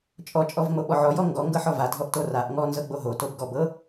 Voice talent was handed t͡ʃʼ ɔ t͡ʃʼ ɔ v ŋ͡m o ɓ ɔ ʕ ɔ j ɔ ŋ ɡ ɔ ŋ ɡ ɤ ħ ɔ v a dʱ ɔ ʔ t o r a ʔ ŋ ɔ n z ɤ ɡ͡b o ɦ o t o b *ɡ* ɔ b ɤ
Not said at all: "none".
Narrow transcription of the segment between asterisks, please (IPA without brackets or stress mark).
ɡ